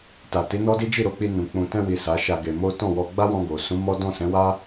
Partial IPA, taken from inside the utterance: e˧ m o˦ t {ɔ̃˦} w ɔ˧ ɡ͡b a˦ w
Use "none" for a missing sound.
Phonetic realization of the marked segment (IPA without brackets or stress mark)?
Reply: ɔ̃˦˨